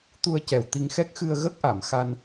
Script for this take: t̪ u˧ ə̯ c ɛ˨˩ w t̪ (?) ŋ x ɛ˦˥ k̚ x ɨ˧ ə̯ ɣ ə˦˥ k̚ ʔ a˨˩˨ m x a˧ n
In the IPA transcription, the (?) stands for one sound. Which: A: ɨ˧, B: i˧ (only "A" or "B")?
B